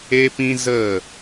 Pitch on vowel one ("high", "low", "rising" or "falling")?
high